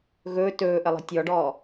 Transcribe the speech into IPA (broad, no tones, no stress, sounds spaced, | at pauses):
ɣ ɵː t ɵː ʔ ə lˠ i̤ tʲ ɔ ɖ ɔː